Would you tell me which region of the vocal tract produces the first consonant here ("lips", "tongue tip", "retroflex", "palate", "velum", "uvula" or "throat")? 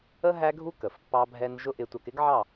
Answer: throat